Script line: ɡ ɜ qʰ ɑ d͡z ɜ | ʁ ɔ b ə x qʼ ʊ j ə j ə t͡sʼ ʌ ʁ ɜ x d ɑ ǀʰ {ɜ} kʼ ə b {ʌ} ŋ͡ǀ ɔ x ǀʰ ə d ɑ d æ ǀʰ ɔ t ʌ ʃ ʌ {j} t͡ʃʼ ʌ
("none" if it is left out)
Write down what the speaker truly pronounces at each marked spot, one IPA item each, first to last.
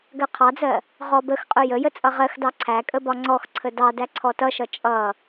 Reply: æ, ɒ, none

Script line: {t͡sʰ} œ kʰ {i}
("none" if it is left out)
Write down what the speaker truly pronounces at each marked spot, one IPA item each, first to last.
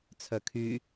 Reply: t͡sʰ, y

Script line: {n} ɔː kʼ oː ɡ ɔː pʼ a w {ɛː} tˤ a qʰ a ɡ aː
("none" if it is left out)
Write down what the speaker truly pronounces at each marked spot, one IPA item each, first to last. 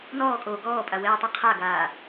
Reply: n, ɛː

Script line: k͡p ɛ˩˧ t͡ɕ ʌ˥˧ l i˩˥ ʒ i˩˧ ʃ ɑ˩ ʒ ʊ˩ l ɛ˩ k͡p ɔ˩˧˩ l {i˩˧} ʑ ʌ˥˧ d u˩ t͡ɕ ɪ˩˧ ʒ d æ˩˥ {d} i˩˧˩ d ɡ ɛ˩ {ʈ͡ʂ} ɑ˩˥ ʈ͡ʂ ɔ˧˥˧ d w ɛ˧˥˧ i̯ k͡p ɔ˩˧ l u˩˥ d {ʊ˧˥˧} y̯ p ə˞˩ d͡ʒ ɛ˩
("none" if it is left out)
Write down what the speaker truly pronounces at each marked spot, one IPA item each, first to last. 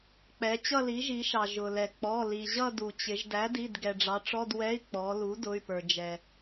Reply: i˩, d, ɖ͡ʐ, ʊ˩˧˩

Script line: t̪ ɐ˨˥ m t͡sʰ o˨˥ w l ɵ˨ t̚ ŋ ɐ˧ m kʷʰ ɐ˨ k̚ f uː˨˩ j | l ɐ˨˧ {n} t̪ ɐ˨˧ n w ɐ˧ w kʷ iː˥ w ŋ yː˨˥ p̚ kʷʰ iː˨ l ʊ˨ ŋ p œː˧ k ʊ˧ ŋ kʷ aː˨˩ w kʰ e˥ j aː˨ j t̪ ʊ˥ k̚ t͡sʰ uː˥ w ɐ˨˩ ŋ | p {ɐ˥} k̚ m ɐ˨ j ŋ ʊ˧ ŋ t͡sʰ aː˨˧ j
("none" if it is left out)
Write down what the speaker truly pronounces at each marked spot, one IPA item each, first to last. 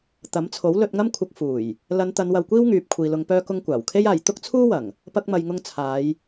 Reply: n, ɐ˧

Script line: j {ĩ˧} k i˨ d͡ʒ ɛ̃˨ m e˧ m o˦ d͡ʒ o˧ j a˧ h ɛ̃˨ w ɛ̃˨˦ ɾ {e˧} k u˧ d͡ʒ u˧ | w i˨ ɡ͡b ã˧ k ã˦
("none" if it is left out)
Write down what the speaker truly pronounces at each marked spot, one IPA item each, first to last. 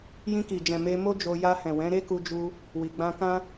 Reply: ĩ˧, e˦

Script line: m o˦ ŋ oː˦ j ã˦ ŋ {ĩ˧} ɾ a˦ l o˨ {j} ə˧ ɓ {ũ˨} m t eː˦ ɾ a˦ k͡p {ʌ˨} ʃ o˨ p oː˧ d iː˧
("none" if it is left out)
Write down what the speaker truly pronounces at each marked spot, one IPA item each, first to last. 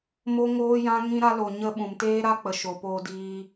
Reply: ĩ˦, ɲ, ũ˨, ə˨

